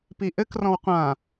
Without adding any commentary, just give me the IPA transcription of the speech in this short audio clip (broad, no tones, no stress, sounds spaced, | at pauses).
p i ʔ ɘ k r ɔ̃ w qʷ ã